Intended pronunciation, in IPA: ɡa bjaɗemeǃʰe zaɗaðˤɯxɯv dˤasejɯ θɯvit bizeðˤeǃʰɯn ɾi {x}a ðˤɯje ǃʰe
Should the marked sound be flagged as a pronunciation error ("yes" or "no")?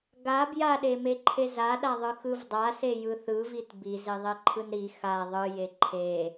no